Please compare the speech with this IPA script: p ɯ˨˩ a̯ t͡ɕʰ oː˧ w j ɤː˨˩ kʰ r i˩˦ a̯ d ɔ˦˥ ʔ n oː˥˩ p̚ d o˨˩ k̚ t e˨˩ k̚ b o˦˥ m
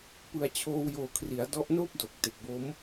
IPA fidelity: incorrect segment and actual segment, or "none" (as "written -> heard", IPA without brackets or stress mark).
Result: ɤː˨˩ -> oː˨˩